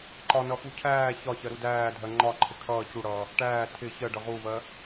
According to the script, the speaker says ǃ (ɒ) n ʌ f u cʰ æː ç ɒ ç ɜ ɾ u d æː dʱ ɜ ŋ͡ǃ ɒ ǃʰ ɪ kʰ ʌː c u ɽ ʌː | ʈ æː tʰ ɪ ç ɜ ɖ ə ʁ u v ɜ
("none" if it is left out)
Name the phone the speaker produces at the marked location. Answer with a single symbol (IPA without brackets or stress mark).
ɒ